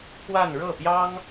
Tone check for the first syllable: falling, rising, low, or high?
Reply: falling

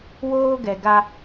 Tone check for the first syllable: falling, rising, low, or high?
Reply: high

